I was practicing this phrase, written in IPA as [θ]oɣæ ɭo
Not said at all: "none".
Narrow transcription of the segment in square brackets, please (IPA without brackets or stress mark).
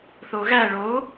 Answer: θ